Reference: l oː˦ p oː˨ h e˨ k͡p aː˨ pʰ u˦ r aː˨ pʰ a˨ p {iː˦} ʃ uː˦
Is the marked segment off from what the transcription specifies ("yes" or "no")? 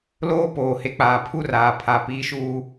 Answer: no